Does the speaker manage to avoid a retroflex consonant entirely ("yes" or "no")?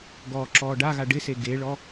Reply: no